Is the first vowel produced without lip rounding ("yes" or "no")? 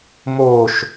no